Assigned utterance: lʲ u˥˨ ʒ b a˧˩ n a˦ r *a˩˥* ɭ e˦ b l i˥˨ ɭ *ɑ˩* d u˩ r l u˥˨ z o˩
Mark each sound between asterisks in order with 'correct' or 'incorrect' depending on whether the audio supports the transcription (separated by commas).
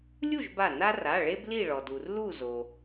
incorrect, incorrect